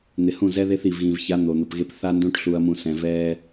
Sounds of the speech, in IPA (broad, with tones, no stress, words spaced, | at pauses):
n̪ɪ˨hũ˦˨ zɛ˦ðe˦θ i˨vɣĩ˨vça˨˦ n̪o˨n̪ʊ˨pɣe˦p θa˦ndõ˦ʈɬu˨ɐ̯mũ˨ sɛ̃˨vɛː˦